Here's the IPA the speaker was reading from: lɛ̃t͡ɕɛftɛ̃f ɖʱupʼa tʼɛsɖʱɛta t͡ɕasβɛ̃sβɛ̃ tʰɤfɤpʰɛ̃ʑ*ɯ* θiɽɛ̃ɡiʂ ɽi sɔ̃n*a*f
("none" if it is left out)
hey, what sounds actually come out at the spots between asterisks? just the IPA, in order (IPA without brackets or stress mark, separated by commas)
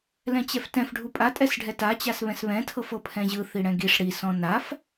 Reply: ɯ, a